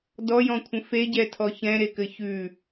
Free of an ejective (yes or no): yes